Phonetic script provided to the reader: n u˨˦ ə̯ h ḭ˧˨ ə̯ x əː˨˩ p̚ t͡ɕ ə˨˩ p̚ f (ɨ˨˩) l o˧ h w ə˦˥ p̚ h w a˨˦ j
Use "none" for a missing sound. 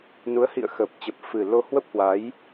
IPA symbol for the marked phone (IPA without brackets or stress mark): ɨ˨˩